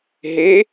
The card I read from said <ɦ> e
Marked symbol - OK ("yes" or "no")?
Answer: yes